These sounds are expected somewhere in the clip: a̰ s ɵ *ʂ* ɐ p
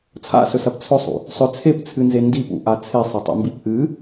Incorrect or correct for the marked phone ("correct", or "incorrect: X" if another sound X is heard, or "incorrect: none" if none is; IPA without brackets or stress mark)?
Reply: incorrect: s